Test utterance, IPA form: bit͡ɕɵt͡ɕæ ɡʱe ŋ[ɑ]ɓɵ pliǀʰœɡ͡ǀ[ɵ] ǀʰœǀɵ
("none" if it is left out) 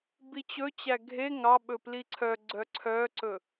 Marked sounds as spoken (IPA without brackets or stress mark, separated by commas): ɑ, œ